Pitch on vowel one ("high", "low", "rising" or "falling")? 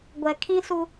low